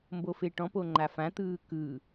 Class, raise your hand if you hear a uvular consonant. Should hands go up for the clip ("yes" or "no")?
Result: no